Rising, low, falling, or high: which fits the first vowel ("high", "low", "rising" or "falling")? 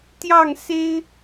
falling